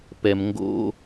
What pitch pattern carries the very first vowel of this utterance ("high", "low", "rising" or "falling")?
low